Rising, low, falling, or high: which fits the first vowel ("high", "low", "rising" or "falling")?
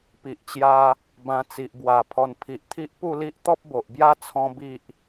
low